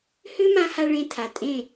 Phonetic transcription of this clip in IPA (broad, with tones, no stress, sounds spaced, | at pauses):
h ʏ˦ m ã˧ h a˧ ɭ ẽ˧ tʰ a˨ tʼ ẽ˦˨